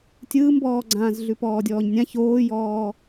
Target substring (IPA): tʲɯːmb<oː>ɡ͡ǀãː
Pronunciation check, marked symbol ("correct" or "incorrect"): incorrect